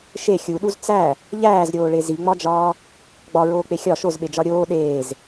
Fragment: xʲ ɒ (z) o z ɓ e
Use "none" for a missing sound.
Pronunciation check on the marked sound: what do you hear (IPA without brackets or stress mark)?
ʃ